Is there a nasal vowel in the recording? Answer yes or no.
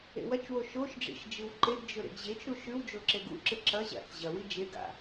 no